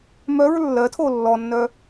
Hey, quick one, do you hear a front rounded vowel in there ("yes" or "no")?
yes